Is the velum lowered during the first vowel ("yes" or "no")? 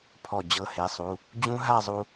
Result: no